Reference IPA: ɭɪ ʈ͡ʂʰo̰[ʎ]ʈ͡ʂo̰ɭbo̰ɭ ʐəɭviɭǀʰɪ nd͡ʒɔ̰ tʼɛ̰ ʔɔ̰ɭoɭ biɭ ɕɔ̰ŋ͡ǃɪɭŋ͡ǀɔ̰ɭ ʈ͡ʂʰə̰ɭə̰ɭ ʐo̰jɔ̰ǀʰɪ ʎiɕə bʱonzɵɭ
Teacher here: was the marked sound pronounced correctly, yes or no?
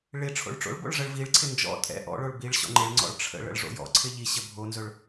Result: no